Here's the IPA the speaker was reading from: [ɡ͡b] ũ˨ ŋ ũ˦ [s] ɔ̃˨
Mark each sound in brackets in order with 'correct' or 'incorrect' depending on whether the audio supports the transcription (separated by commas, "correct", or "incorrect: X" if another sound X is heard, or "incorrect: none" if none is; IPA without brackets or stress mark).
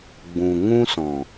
correct, correct